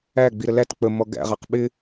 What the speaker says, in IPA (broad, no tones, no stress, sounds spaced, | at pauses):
æ ɡ͡b i ɾ ə l æ t k͡p ə m ɔ ɡ æ̰ ʁ ɑ q ɓ ɪ